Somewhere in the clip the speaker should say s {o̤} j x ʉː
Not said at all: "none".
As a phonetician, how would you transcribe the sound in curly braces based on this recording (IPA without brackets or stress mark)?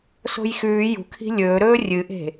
o̤